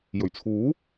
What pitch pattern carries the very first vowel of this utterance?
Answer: low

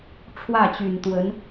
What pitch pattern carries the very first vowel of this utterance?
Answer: falling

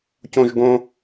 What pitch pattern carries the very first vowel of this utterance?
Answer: high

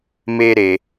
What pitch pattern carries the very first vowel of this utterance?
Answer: high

